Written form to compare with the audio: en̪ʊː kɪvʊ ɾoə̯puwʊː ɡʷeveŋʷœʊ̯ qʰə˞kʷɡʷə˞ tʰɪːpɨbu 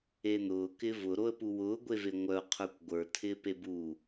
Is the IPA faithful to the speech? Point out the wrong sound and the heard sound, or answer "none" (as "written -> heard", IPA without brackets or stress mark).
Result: ɨ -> e